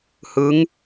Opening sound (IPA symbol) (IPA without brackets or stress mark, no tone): h